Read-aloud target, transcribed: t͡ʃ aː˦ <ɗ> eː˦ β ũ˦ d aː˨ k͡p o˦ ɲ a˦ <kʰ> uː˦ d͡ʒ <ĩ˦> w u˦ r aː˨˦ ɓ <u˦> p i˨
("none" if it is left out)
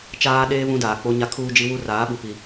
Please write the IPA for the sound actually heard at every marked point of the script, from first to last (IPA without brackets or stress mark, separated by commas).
ɗ, kʰ, i˦, u˨